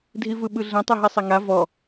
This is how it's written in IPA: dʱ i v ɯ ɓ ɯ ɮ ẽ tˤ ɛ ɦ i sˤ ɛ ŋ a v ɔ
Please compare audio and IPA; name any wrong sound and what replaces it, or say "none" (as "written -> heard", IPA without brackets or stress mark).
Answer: none